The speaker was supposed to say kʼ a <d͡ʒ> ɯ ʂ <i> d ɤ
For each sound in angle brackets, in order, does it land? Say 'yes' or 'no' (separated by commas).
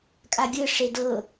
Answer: no, no